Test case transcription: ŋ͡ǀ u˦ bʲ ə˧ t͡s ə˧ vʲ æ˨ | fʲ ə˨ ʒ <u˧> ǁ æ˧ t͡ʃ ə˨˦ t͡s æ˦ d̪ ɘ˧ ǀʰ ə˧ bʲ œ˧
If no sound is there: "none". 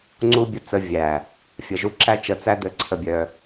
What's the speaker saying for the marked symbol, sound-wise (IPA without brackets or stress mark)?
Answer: u˧